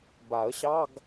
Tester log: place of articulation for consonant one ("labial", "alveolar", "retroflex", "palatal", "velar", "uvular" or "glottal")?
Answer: labial